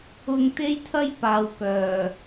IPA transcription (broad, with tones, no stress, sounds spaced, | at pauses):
ʊ˧ ŋ t̪ e˥ j t̪ʰ ɐ˥ j p aː˨ w k œː˨˩